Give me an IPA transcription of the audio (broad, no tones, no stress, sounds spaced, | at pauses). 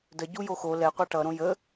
d ə ɟ u j o x o l ɛ qʷ ɑ ʈ ʌ ɾ õ j ə